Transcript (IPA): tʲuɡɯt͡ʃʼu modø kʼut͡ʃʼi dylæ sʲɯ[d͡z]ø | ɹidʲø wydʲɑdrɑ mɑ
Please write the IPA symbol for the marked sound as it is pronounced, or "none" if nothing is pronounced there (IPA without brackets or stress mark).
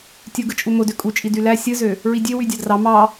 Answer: z